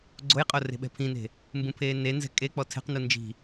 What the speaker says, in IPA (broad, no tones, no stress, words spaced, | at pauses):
ɡ͡ǀojqʼo re̤ɓɛ̤pʰĩne̤ | mbũpʰeːnenzɛ̤ kʼek͡pɔ tʰɛ̤qnu nd͡ʒi̤